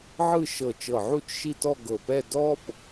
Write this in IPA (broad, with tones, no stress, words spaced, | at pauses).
ʕɯ˥˧ʃɤ˧˩ t͡ʃɤ˧˩ʕu˥˧t͡ʃʃi˥˧tɔ˥˧ ɡɤ˧˩pɛ˥˧ dɔ˥p